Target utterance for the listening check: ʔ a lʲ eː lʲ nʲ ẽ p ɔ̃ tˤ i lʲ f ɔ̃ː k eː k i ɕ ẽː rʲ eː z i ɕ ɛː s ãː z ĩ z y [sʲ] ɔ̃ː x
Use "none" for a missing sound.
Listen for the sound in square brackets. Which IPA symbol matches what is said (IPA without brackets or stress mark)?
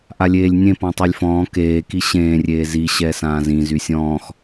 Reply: sʲ